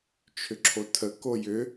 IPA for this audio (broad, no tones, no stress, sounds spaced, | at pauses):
t͡ʃʰ ʏ ǁʰ o tʰ ə k o j ʏ